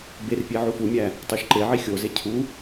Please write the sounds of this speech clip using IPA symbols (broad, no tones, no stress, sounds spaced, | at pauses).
b e r pʲ e ʕ u f u mʲ æ | tˤ o ʃ ǃ e ʕ i xʲ o z e cʰ u